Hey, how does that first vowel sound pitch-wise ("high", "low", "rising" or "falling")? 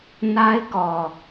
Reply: high